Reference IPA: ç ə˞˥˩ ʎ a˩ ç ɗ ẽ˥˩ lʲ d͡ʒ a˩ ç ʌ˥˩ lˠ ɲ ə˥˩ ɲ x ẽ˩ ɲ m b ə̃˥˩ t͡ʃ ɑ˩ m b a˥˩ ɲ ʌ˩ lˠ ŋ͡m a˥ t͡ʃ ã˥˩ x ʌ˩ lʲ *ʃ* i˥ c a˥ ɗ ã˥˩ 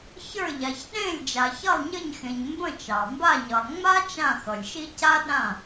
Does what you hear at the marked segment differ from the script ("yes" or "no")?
no